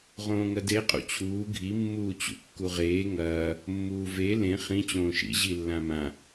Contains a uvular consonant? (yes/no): yes